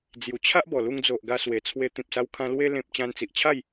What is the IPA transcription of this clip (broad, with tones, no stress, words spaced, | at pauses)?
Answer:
d͡zju˨˩t͡ɕʰa˦ʔ bɔ˨˩lu˧ŋd͡zo˨ʔ ɡa˧swe˨˩t͡sʰwe˧ t̪ĩ˨p̚sa˧wkʰã˧ lwe˧lẽ˨p̚ t͡ɕã˧nt͡si˨ʔt͡ɕʰa˥˧j